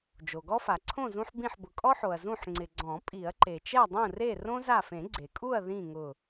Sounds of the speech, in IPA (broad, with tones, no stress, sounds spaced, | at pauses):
d͡ʒ o˩ ɡ ɔ˦ f a˩ ǀʰ õ˥˨ z ũ˦ ħ b ĩ˧˩ ħ b ʊ˩ kʼ ɔ˦ ħ o˩ ɐ̯ z ũ˧˩ ħ ŋ͡ǀ ɪ˩ ɡ͡ǀ ɔ̃˨˩˦ pʼ i˨˩˦ ɐ̯ ǃ e˩ t͡ʃ ɛ˥˨ dˤ ũ˥˨ r e˥˨ r õ˦ z a˧˩ f ẽ˨˩˦ ɡ͡ǀ e˩ kʼ u˥˨ ɐ̯ ð ĩ˥˨ ŋ ʊ˧˩